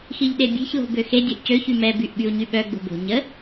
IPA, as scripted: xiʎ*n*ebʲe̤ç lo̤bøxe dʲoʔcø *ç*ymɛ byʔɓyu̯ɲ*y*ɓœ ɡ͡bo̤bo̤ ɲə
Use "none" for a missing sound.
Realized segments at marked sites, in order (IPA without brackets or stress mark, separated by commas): ɗ, ç, y